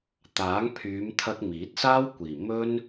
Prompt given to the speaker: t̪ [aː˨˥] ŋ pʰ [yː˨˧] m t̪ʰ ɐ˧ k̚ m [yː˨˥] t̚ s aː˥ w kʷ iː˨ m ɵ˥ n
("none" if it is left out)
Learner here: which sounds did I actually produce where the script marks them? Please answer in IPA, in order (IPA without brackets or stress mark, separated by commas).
aː˨˥, yː˨˧, iː˨˥